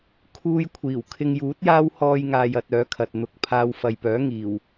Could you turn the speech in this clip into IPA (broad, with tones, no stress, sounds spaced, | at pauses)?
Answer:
kʰ uː˥ j kʷʰ iː˨˩ w kʰ ɪ˧ ŋ j uː˨˥ t̚ j aː˥ w h ɔː˥ j ŋ aː˧ j ɐ˧ t̚ œː˨˥ kʰ ɐ˨ t̚ n̪ ʊ˨˥ k̚ pʰ aː˧ w f ɐ˨ j p œː˨˥ ŋ iː˨˩ w